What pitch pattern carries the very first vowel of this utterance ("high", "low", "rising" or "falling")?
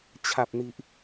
low